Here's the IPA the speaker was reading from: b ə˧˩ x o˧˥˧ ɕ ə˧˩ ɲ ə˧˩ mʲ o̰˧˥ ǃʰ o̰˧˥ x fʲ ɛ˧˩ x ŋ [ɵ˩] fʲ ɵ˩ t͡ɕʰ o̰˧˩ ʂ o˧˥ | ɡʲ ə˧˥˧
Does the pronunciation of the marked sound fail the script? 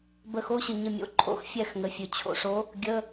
yes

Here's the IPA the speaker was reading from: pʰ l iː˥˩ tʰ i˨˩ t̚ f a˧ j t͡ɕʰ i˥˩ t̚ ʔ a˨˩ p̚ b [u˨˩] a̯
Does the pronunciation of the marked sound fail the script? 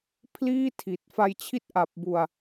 yes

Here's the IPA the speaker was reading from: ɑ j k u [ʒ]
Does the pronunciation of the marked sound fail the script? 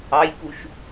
yes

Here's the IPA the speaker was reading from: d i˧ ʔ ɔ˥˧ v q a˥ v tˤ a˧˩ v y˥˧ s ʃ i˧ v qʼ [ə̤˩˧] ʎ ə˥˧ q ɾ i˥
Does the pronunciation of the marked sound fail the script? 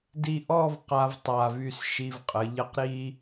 yes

